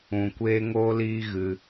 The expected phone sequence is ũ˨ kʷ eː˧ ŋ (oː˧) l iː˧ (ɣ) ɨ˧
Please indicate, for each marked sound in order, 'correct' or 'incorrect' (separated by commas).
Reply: correct, correct